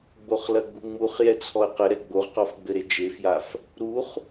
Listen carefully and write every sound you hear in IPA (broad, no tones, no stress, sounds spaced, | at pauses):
ɡ͡b o χ l ɐ ɡ͡b u ŋ͡m u χ j ɛ t͡sʰ ɔ ə̯ q ɘ ɾ ɛ ɡ͡b o ʁ q ɔ f ɡ͡b ɘ ɾ e d͡ʒ e f j a f | ɾ u χ